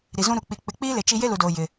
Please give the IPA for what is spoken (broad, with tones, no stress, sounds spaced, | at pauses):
ɾ i˨ z ũ˦ ɾ u˨ k͡p i˨ k͡p ɪ˨˦ k͡p iː˦ l e˨ t͡ʃ i˦ j e˦ l u˨ d oː˨ j ɪ˨